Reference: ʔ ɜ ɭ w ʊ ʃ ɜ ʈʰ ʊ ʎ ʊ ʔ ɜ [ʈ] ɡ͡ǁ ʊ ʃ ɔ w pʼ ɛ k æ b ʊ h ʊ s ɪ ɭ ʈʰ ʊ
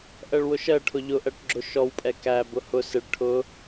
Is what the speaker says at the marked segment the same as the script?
yes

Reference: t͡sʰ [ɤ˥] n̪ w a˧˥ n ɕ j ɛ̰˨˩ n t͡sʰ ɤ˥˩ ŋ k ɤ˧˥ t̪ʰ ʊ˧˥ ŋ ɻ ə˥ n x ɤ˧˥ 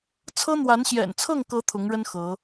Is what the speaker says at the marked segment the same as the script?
yes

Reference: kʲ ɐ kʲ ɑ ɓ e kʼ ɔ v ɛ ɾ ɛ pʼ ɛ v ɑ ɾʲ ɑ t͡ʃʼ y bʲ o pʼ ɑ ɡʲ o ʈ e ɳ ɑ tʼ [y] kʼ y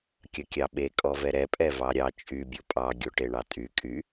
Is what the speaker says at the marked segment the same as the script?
yes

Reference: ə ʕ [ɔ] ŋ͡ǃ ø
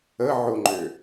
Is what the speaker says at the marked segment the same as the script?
no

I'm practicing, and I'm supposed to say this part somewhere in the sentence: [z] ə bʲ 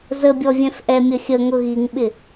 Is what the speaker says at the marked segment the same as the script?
yes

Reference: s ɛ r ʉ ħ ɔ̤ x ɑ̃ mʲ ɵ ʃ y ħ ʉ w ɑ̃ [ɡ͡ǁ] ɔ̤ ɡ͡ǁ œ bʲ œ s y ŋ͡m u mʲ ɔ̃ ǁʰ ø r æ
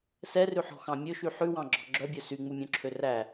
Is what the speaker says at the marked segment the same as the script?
yes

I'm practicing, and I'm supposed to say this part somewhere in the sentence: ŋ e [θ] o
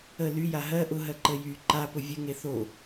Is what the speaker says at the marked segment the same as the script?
yes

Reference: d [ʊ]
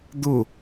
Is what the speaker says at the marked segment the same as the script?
yes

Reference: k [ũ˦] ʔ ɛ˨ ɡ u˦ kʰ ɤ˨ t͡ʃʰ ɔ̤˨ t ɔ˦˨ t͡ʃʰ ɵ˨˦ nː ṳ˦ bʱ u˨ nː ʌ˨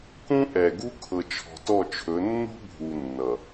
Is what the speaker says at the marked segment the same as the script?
yes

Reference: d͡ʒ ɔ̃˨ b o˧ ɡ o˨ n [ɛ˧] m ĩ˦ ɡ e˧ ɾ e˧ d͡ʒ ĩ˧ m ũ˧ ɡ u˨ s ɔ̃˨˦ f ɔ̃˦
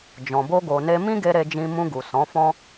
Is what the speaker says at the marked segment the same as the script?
no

